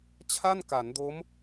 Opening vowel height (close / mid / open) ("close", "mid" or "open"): open